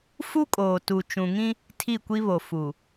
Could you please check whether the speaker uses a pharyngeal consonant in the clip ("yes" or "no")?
no